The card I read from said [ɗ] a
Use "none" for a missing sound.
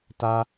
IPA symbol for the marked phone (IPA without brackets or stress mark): t